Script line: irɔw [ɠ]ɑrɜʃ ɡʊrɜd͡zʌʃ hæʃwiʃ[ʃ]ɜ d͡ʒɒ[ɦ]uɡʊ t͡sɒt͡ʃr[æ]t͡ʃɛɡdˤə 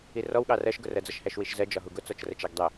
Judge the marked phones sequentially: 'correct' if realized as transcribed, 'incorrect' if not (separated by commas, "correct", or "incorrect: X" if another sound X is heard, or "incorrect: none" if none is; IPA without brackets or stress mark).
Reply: correct, incorrect: z, correct, incorrect: ə